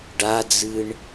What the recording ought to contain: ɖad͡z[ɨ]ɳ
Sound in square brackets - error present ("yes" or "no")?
no